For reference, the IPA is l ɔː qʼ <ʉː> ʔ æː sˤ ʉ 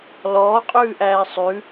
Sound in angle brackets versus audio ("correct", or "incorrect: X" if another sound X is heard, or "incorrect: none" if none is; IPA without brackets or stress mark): correct